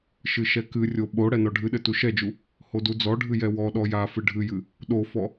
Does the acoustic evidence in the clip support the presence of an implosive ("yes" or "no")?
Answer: yes